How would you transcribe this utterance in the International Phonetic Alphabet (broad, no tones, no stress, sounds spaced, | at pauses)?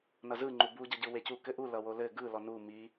n ʌ z ɯ ŋ͡ǃ u b u ɟ ʌ ɟ ɯ w e c u k ɘ ʔ u l ʌ w o l ɘ ɡ ɯ l ɔ n u m i